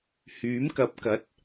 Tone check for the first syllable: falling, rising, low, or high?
rising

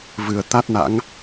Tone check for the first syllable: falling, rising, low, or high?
low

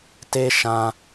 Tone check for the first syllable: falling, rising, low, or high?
high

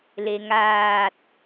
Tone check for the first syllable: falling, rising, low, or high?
low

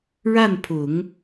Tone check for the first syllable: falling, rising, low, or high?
falling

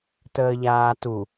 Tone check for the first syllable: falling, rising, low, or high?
low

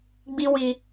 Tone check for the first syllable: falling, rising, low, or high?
high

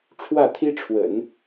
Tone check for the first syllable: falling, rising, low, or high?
falling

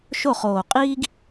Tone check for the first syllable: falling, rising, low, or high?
falling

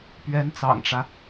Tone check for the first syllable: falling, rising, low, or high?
rising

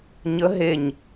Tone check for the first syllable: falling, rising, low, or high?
rising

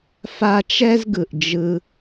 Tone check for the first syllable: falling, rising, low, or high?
high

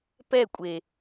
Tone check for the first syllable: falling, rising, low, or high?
falling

